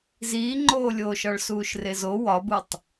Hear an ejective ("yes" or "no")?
no